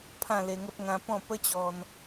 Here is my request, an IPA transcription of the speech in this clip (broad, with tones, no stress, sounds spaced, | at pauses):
pʰ ã˥˧ l e˧ ŋ ə˦ p̚ ŋ ã˦ p ɔ̃˥˧ p ə˦ t͡ɕ ɔ˧ n